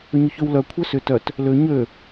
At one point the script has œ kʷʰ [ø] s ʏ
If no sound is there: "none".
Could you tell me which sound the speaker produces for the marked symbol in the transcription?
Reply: œ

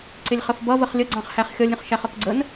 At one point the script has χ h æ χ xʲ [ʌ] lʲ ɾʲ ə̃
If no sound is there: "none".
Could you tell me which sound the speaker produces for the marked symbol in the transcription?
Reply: ʌ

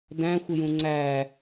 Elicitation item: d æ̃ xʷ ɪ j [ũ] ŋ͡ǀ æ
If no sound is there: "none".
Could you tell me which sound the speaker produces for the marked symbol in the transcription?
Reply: ũ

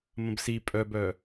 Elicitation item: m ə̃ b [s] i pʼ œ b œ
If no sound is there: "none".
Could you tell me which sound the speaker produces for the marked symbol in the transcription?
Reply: s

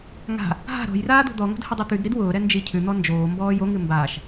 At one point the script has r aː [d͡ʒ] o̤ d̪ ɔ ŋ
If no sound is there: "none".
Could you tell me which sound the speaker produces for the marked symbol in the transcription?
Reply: d̪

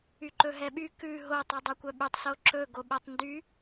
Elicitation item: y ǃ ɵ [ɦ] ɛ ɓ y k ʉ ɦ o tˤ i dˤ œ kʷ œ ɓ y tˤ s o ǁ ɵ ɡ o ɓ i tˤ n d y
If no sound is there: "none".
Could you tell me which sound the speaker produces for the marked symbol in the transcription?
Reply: ɦ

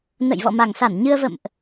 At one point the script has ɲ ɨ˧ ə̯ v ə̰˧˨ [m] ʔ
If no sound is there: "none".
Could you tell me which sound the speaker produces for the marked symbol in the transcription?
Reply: m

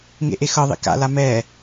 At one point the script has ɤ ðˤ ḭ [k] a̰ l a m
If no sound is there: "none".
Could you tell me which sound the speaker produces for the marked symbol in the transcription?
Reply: k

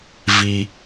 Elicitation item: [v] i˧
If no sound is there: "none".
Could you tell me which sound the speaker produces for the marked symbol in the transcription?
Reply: v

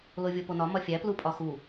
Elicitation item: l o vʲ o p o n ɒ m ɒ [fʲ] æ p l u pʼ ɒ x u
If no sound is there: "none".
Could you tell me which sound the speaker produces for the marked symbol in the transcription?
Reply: fʲ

